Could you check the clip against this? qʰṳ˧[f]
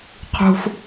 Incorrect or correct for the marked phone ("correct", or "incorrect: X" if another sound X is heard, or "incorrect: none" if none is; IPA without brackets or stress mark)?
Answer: correct